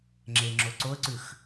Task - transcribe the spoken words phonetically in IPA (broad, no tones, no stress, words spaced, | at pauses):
ŋ͡ǁeŋ͡ǁo ǀoə̯ǀʉx